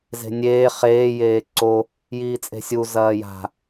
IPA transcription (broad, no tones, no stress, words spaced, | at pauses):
ze̤nʲeː χeː jeːǀo | jiːt͡sʼe̤sʲu zɐːja̤